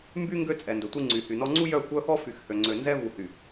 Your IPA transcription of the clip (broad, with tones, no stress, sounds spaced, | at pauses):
m b y˦ ŋ ɡ ø˦ t͡sʼ ɛ˨ n d ɵ˨ tʷ i˦ ŋ͡ǀ y˨ h y˨ n ɔ˦ ŋ͡ǀ u˦ j œ˦˨ kʷ œ˦ x ɔ˦ f y˨ x h ø˨ ŋ͡ǀ ø˨ n z ɛ˦ v u˨ h y˨